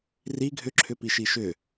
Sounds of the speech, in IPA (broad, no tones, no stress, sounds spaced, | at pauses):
r i ɡʱ ʏ ǁʰ ʏ p i ʃ i ʃ ʏ